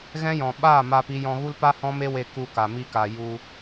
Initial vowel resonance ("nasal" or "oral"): nasal